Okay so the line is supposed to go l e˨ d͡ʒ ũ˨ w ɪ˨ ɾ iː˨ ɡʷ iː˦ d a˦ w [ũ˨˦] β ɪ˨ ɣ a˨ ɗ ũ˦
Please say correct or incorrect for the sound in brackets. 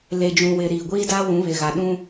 correct